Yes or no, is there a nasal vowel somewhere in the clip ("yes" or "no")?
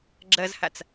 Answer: no